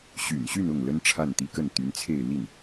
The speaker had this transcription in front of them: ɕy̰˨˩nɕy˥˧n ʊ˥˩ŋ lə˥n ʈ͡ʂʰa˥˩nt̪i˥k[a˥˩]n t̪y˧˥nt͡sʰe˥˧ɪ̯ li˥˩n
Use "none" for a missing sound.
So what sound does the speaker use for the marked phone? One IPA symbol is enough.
ə˥˩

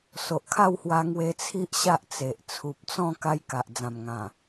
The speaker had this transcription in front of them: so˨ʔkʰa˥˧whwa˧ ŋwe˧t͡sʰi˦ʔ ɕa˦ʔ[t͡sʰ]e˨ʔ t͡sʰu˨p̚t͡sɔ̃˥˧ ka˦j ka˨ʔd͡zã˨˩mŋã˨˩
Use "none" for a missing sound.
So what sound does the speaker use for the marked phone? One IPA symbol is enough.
t͡s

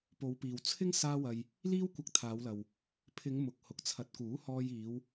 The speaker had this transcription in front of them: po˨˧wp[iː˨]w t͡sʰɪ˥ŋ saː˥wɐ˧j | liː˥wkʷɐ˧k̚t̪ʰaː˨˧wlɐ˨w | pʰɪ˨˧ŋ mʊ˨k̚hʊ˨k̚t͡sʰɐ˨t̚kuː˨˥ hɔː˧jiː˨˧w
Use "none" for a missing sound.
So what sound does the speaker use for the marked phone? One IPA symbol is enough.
iː˨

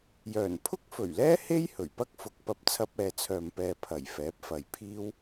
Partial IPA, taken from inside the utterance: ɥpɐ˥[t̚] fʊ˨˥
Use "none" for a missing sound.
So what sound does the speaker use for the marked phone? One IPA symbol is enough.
k̚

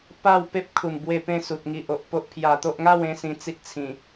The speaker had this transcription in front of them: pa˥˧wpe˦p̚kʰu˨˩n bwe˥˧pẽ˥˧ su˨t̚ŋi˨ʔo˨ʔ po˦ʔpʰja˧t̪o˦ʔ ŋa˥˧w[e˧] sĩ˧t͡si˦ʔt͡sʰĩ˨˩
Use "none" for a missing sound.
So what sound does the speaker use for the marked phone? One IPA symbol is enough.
ẽ˧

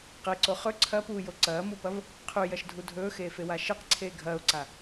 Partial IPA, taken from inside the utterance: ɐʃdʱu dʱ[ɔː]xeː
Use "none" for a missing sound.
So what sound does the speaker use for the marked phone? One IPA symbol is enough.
ɵː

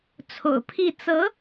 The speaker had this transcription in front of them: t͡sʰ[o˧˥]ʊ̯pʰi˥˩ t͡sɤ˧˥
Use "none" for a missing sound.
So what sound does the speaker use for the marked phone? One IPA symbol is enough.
o̰˨˩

